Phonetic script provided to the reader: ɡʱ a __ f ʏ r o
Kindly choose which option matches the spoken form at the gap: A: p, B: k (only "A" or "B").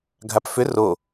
A